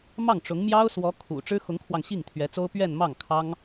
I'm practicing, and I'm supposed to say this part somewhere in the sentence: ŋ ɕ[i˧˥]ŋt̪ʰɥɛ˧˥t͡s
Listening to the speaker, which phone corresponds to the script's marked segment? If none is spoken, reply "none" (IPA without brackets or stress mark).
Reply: i˥˩